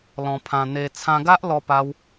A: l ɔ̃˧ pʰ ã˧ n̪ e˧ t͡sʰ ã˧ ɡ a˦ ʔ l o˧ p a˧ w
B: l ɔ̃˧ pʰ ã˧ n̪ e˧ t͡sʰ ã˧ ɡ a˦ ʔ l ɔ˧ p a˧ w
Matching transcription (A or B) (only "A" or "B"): B